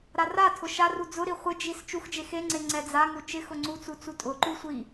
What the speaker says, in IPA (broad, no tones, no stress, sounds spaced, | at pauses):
ɾ a r a tʰ ʊ ʃ a r u d͡z ʊ ɾ i χʷ ɪ d͡ʒ i s t͡ʃ u x d͡ʒ e x e ŋ͡ǀ e ŋ͡ǀ ɛ d͡z a ŋ u t͡ʃ ɪ x ʊ ŋ͡ǀ u t͡s u t͡s u tʼ ʊ ǃ u sʷ i